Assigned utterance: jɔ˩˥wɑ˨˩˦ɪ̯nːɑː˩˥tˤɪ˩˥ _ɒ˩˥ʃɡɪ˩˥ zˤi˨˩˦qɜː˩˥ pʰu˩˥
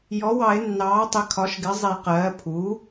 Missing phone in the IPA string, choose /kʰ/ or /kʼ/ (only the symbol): kʰ